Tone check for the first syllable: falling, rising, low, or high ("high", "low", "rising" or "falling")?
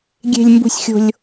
high